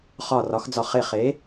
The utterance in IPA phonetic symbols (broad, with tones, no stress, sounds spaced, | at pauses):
χ ɒ˧˩ r ɒ˩˥ x d͡z ɒ˧˩ χ e˧˩ χ e˩˥